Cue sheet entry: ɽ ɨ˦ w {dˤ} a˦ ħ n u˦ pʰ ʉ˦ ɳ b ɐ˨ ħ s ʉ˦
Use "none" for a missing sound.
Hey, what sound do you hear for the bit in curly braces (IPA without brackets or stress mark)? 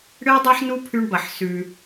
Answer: dˤ